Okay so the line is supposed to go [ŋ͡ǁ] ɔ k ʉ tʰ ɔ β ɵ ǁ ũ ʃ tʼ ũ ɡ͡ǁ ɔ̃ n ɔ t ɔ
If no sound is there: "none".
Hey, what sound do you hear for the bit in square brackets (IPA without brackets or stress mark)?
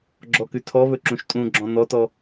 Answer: ɡ͡ǁ